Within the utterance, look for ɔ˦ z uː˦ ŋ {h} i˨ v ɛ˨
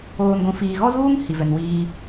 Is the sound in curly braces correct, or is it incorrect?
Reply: correct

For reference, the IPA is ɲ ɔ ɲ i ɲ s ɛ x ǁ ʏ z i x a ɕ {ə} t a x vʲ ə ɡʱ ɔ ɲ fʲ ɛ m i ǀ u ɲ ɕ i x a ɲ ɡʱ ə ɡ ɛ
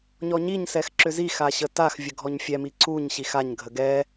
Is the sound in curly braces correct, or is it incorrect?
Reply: correct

